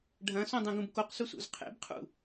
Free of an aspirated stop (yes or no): no